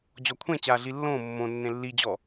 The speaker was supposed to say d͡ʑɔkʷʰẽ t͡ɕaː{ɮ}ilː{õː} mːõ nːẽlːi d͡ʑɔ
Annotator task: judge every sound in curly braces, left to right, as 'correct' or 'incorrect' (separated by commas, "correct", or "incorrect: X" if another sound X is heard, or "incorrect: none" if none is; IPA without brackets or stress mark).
correct, correct